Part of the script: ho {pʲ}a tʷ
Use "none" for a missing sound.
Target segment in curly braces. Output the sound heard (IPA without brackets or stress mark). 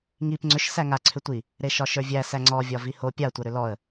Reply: pʲ